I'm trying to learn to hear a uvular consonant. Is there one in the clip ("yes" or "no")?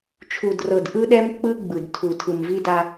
no